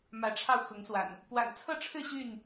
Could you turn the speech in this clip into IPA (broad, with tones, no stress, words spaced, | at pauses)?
mä˨˦ʈ͡ʂʰɑ˧ʊ̯ xʊ˨˦ŋswa̰˨˩n | pwa̰˨˩nt͡sʰɤ˥˨ʈ͡ʂʰɻ̩˥˨ ɕy˥˨n